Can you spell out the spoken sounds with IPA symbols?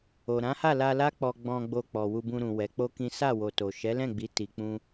o˨ ɾ ã˨˦ h a˦˨ l a˧ l a˦ k͡p ɔ˧ ɡ͡b ɔ̃˧ ɡ͡b o˧ k͡p ɔ˨ w u˧ b ũ˧ ɾ ũ˨ w ɛ˨˦ k͡p o˦ k ĩ˦ s a˦˨ w o˨ t o˨ ʃ ɛ˨˦ l ɛ̃˦˨ ɡ͡b i˨˦ t i˧ k͡p ũ˦

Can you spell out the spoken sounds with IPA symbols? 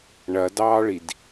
ɳ ɐ d ɑː ɭ i d

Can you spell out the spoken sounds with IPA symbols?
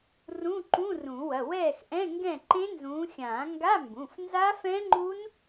r ũ˧˥˧ ǃ ũ˧˥˧ r ũ˨˩˦ w ɐ˩˧˩ w ɛː˥˨ x ʔ ɛ̃˧˥˧ ŋ ɡ ɛ̃˥˨ ǃ ẽ˦˥ n z ũː˨˦ xʲ ãː˨˩˦ ŋ ɡ a˧˥˧ m b ũ˩˧˩ f n z a˦˥ f ɛ̃˦˥ ŋ͡ǃ u˦˥ n

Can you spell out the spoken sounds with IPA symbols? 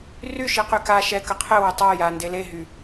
r y ʃ i q y k a ʃ ɛ k ə qʰ ɘ w ɘ tˤ a j a n d e l e ɦ y

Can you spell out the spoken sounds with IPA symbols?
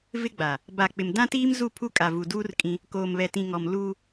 v ɪ˦ ɡ͡b a˨ | b a˨ k͡p ɪ˨ m d ã˦ t iː˦ m z u˦˨ pʰ u˦ kʼ a˨ v u˨ d uː˦ r kʼ ĩ˦ | k oː˨ m β ɛ˨ t ĩ˨ ŋ ɔ˨ m l u˦

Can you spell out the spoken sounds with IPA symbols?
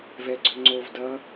v ɛ ɡ͡ǀ ø ŋ͡ǀ o v d ʌ

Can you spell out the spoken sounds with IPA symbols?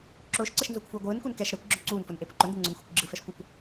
ǁ ʊː ʃ ǀ ə ʃ n z ʊː kʷ f uː ɡʷ ɯː n k u n k ɛ ʃ ɾ ɛ kʷ ɡ͡ǁ œ ǀ uː n f ʊ n ʔ e p ʊ ǃ ʊ n d ɯ ŋ͡ǀ ʊ n xʷ e kʷ ɡ͡ǁ ɯ f ɛ ʃ kʷ ə kʷ

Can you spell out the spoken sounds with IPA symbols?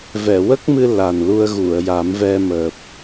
v ɛ˨˩˨ w ə˦˥ k̚ m ɨ˧ l a˨˩ n l u˧ ə̯ ɣ u˨˩˨ ə̯ j a˨˩˦ m v ɛ˧ m əː˨˩ p̚

